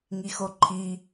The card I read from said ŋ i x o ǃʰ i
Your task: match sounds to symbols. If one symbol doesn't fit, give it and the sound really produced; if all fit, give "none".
none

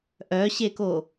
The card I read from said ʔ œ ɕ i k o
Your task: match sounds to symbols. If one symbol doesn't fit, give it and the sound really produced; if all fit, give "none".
i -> e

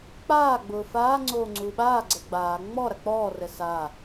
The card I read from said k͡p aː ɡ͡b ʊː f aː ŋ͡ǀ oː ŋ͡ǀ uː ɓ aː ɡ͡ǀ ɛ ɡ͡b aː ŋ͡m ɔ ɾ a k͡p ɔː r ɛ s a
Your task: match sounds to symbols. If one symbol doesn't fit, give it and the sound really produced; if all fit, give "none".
none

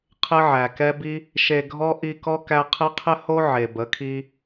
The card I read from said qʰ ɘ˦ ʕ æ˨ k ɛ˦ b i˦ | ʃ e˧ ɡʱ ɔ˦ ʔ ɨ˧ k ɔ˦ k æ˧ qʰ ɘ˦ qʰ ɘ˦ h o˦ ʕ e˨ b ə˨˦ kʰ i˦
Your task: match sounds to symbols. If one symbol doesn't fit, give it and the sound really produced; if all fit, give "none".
ɨ˧ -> i˧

